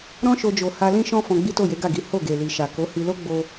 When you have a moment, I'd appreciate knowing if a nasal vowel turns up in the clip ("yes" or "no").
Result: yes